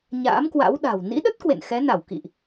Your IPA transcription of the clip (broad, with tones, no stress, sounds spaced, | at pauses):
ɲ a̰ː˧˥ m k w a̰˧˥ w ɗ a̤˨˩ w n ḭ˧˥ ɗ ə˦˥ t̚ k w ḛ˧˨ n x ɛ˨˦ n a˧˩ w k ḭ˧˨ ʔ